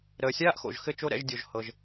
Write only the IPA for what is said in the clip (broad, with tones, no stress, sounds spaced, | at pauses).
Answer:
ɾ əː˨ sʲ aː˦ ʔ x o̰˨ ʒ x ɘ˦˨ t͡ʃ o˦ ɾ ɛ̰˦ ʒ dʲ o˦ ʒ h ɤ˦ ʒ